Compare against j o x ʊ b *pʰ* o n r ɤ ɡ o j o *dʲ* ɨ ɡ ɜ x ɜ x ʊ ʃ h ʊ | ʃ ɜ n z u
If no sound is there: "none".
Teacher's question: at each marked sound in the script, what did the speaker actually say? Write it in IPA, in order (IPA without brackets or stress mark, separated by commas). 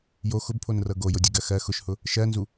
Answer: pʰ, dʲ